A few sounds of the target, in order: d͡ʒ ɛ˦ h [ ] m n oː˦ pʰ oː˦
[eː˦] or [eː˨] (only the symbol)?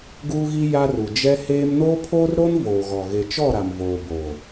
eː˦